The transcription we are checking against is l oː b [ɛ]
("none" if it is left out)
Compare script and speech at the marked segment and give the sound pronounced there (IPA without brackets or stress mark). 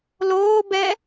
ɛ